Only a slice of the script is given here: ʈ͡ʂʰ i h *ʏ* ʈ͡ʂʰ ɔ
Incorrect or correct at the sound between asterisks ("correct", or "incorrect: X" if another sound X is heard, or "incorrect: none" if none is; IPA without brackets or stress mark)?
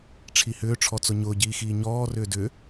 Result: incorrect: ʏː